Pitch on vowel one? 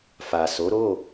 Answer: low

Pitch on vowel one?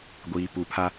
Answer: low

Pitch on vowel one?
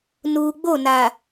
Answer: low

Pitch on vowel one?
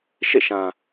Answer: falling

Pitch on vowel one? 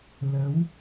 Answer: rising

